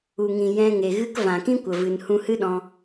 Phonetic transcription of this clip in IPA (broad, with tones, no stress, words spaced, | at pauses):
u˨ŋĩ˨ jɛ̃˧ŋe˨ ɣɨ˦k vã˨kĩ˦kʷə˨ vɨ˨n hũ˧hɨ˦ɗɔ̃˧